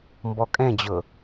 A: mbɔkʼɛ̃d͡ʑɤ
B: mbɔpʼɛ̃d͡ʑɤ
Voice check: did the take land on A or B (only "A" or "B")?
A